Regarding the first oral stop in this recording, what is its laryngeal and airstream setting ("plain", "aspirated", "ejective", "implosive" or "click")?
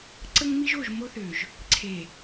click